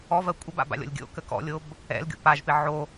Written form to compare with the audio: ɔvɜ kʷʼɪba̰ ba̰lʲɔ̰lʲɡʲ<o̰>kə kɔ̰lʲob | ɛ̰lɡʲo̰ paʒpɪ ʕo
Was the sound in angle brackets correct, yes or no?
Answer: yes